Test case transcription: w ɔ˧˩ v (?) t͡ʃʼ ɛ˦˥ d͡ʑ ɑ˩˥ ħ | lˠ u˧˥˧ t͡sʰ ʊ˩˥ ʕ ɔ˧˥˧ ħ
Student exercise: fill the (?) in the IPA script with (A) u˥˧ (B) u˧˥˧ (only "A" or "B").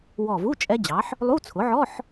B